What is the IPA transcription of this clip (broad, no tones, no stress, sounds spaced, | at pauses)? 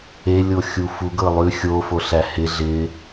e lʲ o xʲ u f u ɡ ɤ lˠ ʉ xʲ o f o ɬ æ h ɪ ɮ ɪ